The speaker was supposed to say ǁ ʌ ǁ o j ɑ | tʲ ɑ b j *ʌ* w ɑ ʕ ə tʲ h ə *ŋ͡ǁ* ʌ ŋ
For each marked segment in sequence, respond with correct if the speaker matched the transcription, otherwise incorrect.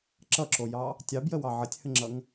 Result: incorrect: ə, correct

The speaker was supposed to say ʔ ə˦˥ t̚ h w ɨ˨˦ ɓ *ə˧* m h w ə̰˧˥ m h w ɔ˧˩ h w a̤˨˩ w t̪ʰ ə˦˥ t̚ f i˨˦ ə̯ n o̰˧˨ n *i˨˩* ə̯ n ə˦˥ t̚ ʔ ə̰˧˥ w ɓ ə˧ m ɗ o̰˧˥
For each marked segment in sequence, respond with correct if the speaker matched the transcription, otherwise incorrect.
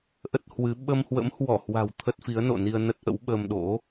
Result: correct, incorrect: i˧

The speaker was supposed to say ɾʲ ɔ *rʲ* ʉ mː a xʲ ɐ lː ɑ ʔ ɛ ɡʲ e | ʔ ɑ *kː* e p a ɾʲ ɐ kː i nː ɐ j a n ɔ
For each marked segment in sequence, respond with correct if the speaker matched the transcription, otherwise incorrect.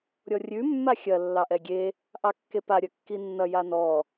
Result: correct, correct

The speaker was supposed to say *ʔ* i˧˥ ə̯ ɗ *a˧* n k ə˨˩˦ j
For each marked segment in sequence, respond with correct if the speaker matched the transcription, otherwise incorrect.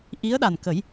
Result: correct, incorrect: a˨˩

